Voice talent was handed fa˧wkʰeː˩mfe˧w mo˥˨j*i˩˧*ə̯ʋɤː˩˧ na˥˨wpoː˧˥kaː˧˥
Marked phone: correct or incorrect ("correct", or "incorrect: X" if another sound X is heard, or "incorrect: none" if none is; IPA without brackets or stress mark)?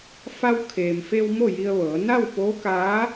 incorrect: i˧